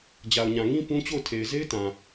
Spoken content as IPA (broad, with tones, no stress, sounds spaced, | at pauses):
d͡ʑ a˨ ʊ̯ ɲ ã˨ ŋ ĩ˦ p ũ˦ t͡ɕ o˦˨ ʊ̯ tʰ e˨ ɪ̯ z e˦ ɪ̯ t ã˨